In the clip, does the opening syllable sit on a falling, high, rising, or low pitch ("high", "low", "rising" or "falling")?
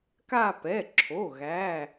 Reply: falling